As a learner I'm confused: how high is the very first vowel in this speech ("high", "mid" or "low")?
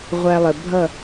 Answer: low